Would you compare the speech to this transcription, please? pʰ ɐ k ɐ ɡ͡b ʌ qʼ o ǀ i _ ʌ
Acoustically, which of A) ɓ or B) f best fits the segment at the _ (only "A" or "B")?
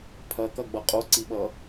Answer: A